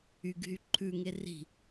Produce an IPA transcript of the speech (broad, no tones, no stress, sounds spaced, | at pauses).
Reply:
y ɡ ɦ y ǃʰ ʉ ŋ e r i̤